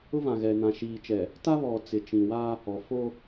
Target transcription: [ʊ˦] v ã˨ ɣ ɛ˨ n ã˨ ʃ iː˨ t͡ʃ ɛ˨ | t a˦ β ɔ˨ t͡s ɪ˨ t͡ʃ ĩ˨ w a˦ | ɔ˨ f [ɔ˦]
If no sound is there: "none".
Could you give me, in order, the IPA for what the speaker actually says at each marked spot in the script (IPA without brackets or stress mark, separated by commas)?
ʊ˦, o˦